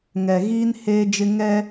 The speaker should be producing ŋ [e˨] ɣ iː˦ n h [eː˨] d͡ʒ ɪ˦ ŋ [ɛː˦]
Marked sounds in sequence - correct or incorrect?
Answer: incorrect: ɛ˨, incorrect: eː˦, incorrect: ɛ˦

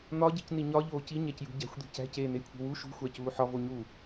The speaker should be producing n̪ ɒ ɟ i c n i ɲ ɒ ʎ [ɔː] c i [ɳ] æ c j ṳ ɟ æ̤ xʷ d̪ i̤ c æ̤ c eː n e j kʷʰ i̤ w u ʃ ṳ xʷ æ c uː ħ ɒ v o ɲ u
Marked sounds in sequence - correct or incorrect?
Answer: incorrect: oː, incorrect: ɲ

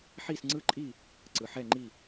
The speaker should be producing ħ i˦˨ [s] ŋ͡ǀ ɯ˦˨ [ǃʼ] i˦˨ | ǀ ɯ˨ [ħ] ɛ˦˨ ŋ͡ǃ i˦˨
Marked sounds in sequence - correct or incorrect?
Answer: correct, correct, correct

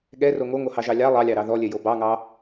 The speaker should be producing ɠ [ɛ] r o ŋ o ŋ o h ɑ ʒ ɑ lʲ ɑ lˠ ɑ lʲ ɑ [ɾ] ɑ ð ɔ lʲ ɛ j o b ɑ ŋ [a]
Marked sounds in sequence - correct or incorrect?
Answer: correct, correct, incorrect: ɑ

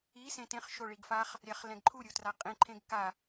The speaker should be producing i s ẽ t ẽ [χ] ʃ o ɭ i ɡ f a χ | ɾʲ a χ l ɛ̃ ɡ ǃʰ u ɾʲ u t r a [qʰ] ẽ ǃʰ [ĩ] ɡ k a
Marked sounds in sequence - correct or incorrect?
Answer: correct, incorrect: qʼ, incorrect: ẽ

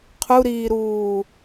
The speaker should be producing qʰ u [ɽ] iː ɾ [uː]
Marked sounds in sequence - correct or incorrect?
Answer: incorrect: ɾ, correct

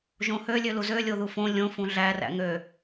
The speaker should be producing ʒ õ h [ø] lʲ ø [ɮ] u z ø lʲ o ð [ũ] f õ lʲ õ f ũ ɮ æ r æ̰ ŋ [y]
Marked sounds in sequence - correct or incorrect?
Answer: correct, incorrect: l, incorrect: u, incorrect: ø

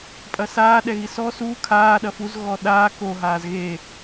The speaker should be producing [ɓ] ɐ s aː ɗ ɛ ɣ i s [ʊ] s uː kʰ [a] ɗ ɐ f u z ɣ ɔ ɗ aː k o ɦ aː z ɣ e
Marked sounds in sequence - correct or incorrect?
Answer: incorrect: pʼ, incorrect: ɔ, incorrect: aː

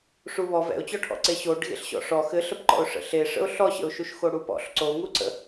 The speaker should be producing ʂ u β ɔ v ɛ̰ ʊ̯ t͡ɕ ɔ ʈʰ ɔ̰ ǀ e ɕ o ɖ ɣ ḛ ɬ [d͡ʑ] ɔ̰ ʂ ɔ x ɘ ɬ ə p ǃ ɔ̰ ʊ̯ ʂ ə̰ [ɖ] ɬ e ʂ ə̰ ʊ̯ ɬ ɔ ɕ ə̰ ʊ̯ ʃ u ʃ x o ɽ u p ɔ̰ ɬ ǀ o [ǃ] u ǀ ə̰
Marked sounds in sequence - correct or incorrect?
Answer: incorrect: ɕ, incorrect: none, incorrect: ŋ

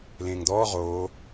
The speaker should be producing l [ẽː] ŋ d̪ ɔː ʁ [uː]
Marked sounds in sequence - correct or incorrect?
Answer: correct, incorrect: oː

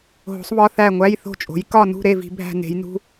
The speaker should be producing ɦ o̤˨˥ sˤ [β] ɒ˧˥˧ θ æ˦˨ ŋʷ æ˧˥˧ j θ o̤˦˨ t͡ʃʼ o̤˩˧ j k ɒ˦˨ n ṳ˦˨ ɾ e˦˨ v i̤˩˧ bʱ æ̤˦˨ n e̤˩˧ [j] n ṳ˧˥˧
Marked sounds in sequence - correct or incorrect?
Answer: correct, correct

